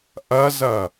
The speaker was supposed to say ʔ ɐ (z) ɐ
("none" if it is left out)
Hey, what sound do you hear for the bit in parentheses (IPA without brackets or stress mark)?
z